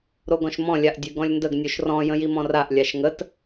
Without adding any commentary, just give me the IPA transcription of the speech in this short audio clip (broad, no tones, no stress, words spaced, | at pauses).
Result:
ɾoɡɔ̃ʃmɔ̃ lʲaʔdʲʉɡɔ̃lʲndəɡ nʲoʃrɔ̃ jə̃jimɔ̃raʔ lʲaʃŋət